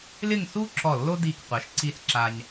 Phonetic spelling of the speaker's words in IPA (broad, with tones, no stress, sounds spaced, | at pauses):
l ɪ˥˧ ŋ s u˥ ǁ ɔ˧˩ lː o˥ d i˧˩ k qʷ ɛ˩˧ ʃ ǀ i˧ s ǁ a˧ ɲ